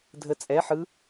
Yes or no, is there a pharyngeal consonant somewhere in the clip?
yes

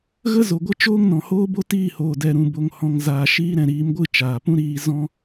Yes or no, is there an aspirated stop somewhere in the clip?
no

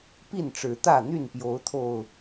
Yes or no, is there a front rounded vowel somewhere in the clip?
yes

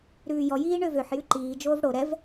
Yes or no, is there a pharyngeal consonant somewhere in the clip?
yes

